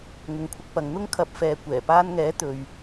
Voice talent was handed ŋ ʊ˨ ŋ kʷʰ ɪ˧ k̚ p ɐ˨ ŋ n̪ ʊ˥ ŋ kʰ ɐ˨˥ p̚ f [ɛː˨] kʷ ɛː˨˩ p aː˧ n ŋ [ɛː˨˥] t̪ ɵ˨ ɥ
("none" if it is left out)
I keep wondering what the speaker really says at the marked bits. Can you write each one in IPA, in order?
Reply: ɛː˨, ɛː˨˥

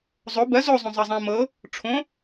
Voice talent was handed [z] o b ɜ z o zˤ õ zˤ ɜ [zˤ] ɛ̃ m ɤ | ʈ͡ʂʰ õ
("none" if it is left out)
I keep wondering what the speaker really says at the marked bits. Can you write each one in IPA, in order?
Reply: zˤ, zˤ

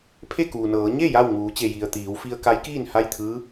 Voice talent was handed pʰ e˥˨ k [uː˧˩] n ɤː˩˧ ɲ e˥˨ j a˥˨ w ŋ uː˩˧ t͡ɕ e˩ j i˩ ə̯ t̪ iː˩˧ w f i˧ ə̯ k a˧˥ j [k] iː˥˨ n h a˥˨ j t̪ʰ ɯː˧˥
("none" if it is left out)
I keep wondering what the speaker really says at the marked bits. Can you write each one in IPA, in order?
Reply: uː˩, k

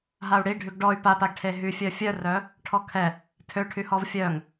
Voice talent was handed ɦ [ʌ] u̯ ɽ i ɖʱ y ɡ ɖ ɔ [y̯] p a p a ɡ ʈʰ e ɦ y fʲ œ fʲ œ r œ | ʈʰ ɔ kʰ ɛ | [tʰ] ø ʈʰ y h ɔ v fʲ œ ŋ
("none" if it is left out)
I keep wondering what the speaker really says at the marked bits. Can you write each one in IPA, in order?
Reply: a, y̯, tʰ

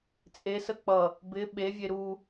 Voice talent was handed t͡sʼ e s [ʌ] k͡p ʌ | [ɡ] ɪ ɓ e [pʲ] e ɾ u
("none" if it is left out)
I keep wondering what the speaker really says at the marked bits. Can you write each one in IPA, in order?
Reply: ə, b, vʲ

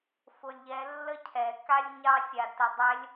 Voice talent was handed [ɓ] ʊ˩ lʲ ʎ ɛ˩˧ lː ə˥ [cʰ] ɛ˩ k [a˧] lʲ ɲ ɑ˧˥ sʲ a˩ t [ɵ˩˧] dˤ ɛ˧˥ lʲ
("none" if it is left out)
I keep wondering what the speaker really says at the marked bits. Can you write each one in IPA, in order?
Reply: f, cʰ, a˥, ə˩˧

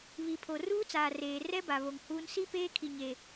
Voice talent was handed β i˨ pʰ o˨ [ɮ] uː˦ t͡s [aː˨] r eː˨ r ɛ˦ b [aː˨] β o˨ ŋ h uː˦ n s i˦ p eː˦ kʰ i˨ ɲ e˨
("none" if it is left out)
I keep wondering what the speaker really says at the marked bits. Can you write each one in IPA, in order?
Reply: r, aː˨, a˨

